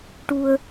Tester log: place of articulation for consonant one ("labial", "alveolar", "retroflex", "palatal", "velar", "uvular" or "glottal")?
retroflex